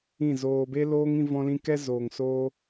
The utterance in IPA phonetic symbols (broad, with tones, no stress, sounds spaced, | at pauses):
ĩ˦˨ z oː˧ b e˦ l oː˦ ŋ ĩ˧ v ɔ̃˧ l ĩ˧ k ɛ˦ z oː˨ ŋ s oː˧